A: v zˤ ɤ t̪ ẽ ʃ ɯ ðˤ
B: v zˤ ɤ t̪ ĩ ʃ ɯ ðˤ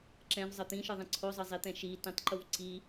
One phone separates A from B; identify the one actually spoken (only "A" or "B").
B